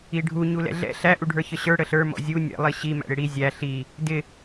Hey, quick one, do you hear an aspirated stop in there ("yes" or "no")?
no